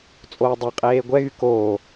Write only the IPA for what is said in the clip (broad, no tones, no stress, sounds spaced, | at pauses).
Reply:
t͡sʼ oː dˤ e qʼ eː ɡʷ ɛ ɣ y k oː